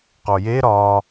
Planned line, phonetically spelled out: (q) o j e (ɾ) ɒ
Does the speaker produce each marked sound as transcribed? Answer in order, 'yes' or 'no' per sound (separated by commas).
yes, yes